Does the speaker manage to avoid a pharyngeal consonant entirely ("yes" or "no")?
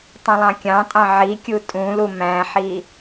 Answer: no